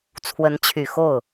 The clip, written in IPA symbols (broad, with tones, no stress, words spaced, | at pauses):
t͡sʰwə˧˥nt͡ɕʰy˨˩xo˥˩ʊ̯